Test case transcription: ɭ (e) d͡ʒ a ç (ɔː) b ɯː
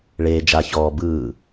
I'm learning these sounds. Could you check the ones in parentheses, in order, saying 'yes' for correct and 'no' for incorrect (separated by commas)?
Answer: no, yes